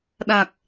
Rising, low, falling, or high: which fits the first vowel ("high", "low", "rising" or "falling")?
low